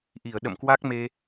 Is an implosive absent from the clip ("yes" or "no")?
no